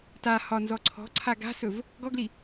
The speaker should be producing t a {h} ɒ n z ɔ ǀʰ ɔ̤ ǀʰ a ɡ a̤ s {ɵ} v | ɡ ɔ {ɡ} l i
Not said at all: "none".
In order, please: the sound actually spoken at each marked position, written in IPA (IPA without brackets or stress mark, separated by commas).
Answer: h, ɵ, ɡ